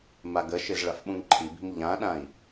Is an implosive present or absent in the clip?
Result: present